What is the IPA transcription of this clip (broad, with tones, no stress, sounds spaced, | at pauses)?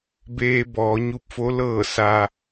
b eː˧ b ɔː˩˧ ɲ u˧ p̚ f o˧˥ l ɤː˧˩ s a˩